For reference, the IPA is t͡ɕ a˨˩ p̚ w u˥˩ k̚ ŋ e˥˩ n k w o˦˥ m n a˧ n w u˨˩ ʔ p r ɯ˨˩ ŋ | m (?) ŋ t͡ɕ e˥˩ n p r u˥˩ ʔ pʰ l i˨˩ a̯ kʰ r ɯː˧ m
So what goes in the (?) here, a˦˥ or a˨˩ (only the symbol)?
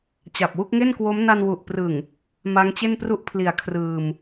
a˦˥